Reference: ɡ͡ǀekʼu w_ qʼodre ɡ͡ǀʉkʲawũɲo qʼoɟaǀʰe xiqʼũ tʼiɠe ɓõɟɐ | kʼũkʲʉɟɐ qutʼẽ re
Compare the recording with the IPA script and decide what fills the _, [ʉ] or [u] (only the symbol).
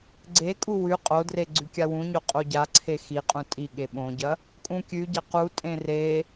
ʉ